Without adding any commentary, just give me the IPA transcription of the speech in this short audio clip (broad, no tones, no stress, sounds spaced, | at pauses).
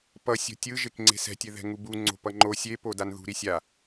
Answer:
p ʌ sʲ o̤ tʲ ɯ ʒ e k ŋ͡ǀ e̤ s ɛ̤ tʲ e ð ɛ̤ ŋ u b u ŋ͡ǀ o̤ p ʌ ŋ͡ǃ o sʲ e p o d a n ð ṳ ɾ i sʲ a